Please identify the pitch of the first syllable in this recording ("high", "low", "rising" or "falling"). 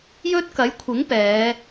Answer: high